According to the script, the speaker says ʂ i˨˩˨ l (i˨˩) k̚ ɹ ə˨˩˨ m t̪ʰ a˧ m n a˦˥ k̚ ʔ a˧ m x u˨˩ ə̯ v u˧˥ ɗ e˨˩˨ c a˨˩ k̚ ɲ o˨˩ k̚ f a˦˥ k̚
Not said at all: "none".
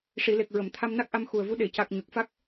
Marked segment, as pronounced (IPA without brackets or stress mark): e˨˩